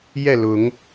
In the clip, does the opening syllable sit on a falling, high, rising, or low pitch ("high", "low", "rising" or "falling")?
falling